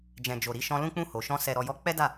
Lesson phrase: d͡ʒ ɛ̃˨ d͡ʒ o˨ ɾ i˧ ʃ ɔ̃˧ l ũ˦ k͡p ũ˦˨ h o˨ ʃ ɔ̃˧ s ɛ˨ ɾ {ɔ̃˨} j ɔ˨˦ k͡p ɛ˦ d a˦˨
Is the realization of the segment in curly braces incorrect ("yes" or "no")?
yes